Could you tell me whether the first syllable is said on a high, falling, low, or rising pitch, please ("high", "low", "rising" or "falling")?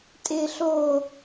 low